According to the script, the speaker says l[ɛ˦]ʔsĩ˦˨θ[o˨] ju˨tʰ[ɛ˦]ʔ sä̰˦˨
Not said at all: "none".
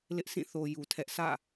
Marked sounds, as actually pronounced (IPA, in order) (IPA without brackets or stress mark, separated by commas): ɪ˦, o˨, ɛ˦